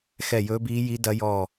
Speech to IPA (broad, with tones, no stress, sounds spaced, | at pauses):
x ɛ˦˨ j ɵː˦˥ b iː˦˥ j i˦˥ d ɐ˦˥ j ɔ˦˨